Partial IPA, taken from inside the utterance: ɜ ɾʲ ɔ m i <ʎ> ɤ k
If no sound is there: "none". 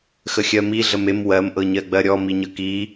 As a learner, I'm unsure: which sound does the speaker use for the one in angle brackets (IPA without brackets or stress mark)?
ɲ